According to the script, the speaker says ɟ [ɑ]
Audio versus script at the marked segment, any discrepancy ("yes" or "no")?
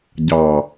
no